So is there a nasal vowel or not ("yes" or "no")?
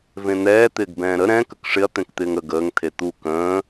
yes